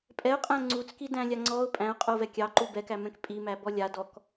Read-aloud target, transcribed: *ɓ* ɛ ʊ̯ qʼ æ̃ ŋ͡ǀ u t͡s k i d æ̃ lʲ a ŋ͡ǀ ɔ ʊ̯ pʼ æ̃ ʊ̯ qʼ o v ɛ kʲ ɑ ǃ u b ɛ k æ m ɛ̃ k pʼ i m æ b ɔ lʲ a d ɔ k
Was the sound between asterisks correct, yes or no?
no